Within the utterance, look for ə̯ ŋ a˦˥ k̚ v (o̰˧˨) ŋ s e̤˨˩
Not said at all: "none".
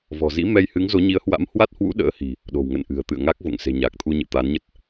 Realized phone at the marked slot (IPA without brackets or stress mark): o̰˧˨